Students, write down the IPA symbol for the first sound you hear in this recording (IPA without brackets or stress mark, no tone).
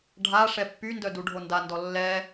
ɖʱ